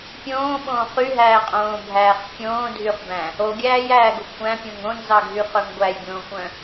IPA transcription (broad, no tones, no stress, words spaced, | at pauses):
pʲõːɓõː χyɦæːqʼõːbʱæːχ fʲõːdʱyχbæ̃ | oɡʲæːjæːɡo kʷæ̃pʲõŋ õnzɑɡʱyχœŋ ɡʷæjɡʲõːkʷœ̃